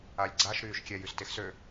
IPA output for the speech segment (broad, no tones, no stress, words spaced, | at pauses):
alʲɡ͡ǀaʃ ɾyːʃkʲɛj ystexsø